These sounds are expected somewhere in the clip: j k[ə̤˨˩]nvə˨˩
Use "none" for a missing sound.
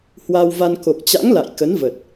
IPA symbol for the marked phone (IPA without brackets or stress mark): ə˨˦